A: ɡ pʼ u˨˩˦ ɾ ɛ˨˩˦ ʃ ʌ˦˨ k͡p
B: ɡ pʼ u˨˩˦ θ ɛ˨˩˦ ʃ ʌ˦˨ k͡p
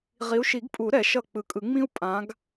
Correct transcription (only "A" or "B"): A